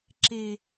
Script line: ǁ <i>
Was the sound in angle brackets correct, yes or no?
no